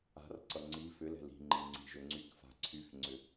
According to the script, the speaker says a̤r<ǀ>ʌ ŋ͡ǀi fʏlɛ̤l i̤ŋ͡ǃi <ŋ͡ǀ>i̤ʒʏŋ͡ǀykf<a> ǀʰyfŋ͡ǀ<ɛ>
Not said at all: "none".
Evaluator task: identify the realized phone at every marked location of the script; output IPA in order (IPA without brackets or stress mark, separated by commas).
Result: ǀ, ŋ͡ǀ, a̤, ʏ